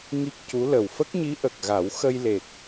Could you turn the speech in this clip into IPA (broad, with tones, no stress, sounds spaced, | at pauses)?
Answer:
ŋ i˦˥ k̚ c u˧˥ l ə˨˩ w f ə˦˥ k̚ ɲ i˧˥ ʔ ə˨˩ k̚ ɣ a˨˩˦ w x ə˧ j l e˨˩ k̚